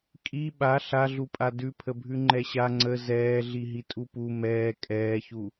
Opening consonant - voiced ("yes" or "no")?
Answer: no